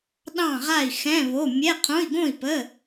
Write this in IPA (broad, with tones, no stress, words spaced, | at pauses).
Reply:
ɗɑ̃˥˨ʁa˥˨i̯ xɛ̃˧˥˧βo˧˥˧ mʲɛ˧˥˧ qʰõ˧˥˧i̯ɡõ˥˨i̯pə˧˥˧